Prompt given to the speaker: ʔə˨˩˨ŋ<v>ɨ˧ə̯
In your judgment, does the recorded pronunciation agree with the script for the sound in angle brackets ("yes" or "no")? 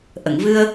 yes